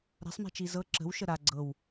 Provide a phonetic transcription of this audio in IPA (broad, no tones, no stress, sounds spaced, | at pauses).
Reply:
ɾ a̤ sˤ m ɛ̤ t͡ʃ i z ɤ ǁ ə̤ w ʃ ə ɾ a ɡ͡ǀ ɤ w